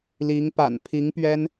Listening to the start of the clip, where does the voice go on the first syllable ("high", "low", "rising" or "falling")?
rising